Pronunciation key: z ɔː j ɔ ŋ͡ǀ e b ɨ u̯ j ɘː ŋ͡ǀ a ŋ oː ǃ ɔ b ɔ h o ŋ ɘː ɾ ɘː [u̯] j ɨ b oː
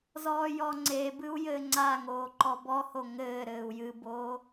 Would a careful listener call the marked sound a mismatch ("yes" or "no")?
no